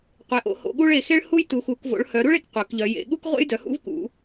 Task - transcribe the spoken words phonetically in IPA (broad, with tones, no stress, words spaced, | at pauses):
qʷe˩˧ʔo̰˩˧ho̰˩˧ɠu˥ɭ e˩˧xe˥ɭ hu˥jtu˩˧xu˩˧k vo̰˩˧ɭhœ˩˧ɾu˥ɭe˩˧k qʷœ˩˧kʎœ˩˧ jḛ˩˧ɠu˥k ʁʷḛ˥jdœ˩˧hṵ˥v kṵ˩˧